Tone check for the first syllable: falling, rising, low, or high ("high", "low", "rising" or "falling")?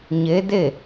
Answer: rising